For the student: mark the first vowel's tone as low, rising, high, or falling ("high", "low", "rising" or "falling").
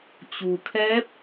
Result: low